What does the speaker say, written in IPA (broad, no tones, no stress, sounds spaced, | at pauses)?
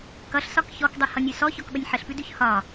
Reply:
k ʌ ɬ s ɒ k ç ɔ k dˤ ʌ h ʌ nʲ ʉ s ɔ ç ɔ k ɓ ə nʲ ħ ə ɬ p ʉ d ʉ ç h ɒ